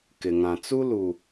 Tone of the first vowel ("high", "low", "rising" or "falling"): low